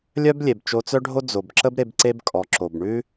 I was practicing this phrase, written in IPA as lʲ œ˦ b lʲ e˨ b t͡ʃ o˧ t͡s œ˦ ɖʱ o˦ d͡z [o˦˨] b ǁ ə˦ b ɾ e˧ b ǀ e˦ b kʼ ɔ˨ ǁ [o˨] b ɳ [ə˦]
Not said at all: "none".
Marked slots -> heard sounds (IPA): o˨, o˨, ʉ˦

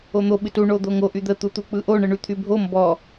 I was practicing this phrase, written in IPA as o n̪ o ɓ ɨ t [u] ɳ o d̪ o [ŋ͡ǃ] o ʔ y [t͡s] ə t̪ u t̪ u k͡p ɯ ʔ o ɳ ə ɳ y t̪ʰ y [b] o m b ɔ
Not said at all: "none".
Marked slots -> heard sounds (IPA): u, ŋ, d̪, bʱ

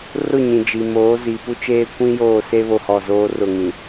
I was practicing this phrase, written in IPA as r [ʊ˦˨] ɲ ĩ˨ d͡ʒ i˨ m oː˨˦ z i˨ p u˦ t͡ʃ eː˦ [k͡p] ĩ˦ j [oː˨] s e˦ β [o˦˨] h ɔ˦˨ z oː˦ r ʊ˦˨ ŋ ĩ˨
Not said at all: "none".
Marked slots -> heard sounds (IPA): ʊ˦˨, kʷ, oː˦˨, o˦˨

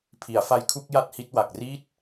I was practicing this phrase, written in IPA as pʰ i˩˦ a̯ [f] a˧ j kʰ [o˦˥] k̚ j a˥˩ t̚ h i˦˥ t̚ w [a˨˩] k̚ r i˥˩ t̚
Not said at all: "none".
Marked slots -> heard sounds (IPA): f, u˦˥, a˨˩

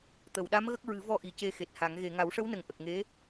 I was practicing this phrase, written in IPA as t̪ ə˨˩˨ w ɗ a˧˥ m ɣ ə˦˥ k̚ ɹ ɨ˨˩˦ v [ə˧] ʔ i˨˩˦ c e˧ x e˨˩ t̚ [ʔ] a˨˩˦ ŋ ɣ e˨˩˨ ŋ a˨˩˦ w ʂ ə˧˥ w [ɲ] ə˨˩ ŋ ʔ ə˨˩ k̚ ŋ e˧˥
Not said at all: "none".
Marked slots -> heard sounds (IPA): ɔ˧, h, n

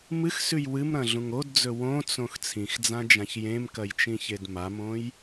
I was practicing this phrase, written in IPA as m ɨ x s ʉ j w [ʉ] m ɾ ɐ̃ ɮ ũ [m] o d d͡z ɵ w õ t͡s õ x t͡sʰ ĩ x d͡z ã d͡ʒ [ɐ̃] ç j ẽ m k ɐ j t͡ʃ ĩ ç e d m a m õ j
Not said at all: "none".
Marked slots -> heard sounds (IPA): ɨ, ŋ, ã

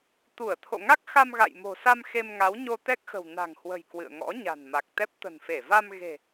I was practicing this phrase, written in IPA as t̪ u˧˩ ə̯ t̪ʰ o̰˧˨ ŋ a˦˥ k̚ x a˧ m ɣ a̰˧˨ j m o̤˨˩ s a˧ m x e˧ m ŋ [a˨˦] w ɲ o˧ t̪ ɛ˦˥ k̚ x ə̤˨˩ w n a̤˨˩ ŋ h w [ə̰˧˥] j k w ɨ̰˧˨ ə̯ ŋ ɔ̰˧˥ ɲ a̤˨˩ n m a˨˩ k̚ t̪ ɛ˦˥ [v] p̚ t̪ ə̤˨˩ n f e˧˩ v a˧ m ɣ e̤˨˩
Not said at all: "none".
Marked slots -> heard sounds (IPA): a˨˦, ə̤˨˩, none

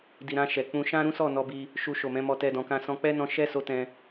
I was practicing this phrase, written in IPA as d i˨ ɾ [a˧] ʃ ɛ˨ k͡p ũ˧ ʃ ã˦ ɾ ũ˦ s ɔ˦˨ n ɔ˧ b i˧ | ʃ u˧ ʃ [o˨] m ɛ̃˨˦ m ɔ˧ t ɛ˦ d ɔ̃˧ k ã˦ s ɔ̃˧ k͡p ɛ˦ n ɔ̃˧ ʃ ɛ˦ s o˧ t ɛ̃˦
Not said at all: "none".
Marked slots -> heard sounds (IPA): ã˧, o˨

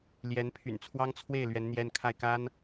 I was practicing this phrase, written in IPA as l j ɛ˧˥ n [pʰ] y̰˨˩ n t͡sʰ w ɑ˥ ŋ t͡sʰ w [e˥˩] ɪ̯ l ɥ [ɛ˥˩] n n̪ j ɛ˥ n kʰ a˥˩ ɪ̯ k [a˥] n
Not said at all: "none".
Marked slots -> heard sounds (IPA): pʰ, e˥˩, ɛ˧˥, a˥

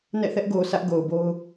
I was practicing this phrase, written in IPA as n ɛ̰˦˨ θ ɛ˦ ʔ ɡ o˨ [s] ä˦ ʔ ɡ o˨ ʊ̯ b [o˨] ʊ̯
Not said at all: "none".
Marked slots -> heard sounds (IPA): s, o˦

